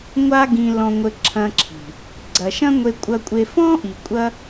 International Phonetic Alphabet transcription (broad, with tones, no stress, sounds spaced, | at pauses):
ŋʷ a˦ ɡ ĩ˧ l ɔ̃˧ ŋʷ ɘ˧ ǁʰ ɐ̃˧ ǁʰ i̤˨ | ɡ͡ǀ ɐ˨ ʃ ɐ̃˦ ŋʷ e˧ kʷʼ ɐ˧ kʷʼ e˧ f ɔ̃˦ ʔ i˨ kʷʼ ɐ˦